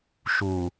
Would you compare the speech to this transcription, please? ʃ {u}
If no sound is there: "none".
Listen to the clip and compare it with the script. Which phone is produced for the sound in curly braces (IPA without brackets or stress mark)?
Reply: u